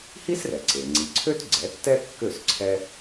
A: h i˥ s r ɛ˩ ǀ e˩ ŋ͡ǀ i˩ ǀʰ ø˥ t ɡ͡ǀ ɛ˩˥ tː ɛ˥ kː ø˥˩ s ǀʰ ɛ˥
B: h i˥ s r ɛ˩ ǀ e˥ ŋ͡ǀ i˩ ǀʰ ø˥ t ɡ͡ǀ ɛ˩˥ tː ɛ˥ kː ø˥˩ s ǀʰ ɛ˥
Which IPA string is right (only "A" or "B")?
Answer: A